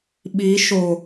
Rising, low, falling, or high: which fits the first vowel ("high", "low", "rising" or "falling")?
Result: rising